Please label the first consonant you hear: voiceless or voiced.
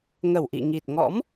voiced